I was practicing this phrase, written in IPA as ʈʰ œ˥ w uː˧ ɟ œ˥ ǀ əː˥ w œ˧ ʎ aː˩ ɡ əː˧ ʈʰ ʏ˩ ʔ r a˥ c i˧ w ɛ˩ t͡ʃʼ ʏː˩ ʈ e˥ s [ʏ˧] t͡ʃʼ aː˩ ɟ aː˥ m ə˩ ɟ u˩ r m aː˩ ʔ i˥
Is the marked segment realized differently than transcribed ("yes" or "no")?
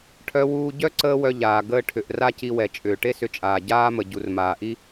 no